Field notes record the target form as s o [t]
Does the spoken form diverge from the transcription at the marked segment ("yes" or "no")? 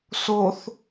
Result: yes